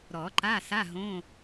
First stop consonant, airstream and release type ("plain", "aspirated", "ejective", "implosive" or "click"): click